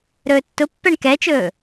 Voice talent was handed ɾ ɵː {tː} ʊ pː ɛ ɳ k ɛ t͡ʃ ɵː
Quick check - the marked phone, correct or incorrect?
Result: correct